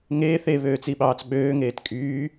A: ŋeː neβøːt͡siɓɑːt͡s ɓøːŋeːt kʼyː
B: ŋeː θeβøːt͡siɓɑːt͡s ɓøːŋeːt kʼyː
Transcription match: B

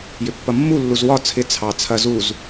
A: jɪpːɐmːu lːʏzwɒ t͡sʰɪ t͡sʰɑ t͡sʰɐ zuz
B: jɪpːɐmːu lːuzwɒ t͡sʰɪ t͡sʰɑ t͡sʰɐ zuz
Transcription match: B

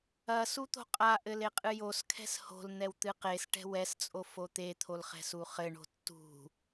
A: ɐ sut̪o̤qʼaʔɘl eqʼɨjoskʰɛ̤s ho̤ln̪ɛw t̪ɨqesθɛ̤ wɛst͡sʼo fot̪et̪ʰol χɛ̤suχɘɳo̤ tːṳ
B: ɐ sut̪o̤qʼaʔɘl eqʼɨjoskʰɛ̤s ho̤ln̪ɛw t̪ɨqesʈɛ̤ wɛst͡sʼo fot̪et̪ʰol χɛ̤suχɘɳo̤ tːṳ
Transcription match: B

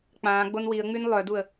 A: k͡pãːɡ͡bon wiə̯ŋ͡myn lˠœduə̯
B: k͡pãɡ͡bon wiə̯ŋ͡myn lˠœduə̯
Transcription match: A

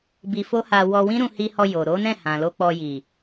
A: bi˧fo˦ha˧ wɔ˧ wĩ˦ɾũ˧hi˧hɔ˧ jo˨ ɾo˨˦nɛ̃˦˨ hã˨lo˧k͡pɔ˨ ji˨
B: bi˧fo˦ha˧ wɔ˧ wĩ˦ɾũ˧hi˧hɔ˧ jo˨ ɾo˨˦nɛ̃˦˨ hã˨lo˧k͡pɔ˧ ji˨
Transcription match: B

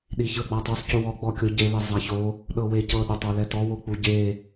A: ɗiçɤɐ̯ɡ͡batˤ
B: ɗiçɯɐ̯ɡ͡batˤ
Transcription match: B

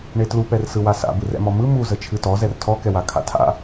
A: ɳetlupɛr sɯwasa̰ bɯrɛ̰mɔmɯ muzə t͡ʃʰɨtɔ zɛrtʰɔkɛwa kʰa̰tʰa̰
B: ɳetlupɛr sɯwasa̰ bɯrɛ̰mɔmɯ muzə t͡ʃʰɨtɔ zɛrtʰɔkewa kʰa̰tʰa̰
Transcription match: A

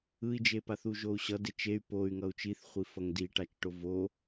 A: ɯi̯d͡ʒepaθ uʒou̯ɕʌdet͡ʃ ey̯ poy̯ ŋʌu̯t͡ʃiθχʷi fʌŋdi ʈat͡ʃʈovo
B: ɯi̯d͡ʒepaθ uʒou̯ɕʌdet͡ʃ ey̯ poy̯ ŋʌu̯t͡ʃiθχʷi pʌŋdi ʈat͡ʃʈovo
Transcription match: A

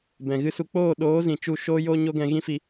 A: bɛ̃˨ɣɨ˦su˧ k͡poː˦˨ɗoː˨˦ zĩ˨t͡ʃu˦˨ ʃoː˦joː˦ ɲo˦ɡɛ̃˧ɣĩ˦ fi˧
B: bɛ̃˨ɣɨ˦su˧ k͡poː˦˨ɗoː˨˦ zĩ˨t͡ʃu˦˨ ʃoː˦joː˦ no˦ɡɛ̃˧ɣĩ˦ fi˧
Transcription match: A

